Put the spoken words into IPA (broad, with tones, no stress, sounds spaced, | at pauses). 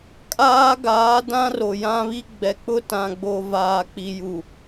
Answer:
kʼ aː˦ ɡ aː˨˦ d ã˦ r o˨ j ã˦ β i˦ ɡ͡b ɛ˨ k͡p ʊ˦ t ã˨ ɡ͡b o˨ v aː˨ k͡p i˨ j u˨